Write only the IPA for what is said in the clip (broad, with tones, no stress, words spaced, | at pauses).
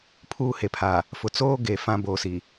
pʰuː˦he˨pʰaː˨ | fʊ˨t͡soː˦ɡe˨ fã˦bo˨si˨